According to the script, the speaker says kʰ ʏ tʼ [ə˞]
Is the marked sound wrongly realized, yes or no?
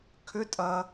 yes